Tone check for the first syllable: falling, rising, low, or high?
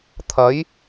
rising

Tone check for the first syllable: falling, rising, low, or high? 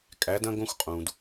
rising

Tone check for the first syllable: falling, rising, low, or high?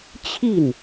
falling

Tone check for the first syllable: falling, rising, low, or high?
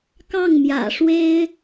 falling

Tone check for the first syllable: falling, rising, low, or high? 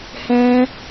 high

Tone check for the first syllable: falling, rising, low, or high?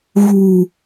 low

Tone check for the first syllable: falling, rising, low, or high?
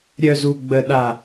high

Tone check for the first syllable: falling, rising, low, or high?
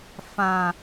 low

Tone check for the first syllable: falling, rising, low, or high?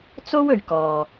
high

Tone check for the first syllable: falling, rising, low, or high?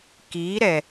rising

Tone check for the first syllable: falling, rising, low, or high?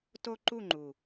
high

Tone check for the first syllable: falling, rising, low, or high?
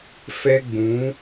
high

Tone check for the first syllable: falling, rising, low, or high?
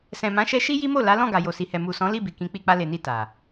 low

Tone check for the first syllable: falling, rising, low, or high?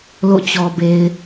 falling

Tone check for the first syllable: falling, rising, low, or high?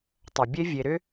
low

